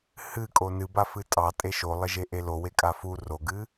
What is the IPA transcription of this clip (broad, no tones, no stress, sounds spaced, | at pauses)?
h ɨ kʼ o n ɨ b a f ɨ tʼ ɑ tʼ e ʃ o lˠ ɪ ʒ e ʔ e l o w e kʼ a f u r o ɡ ɨ